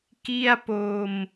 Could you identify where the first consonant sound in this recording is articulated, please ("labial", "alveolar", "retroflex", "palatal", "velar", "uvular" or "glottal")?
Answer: velar